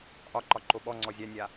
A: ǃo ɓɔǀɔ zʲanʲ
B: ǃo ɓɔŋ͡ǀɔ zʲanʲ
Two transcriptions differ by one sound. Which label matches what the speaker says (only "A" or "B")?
B